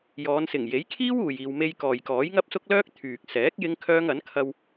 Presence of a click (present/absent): absent